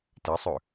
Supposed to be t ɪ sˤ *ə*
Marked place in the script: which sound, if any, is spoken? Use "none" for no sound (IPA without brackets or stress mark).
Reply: ʏ